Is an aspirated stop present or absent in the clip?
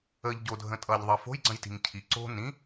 present